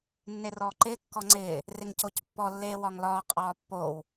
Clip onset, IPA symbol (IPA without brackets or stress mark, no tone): nː